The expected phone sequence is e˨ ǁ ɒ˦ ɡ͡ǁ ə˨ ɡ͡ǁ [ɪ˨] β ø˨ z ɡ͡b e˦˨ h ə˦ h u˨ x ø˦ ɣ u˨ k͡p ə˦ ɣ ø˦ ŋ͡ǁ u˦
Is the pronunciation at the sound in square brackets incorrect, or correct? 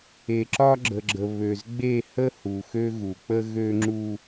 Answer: incorrect